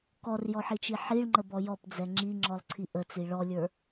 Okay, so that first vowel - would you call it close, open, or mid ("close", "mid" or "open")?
mid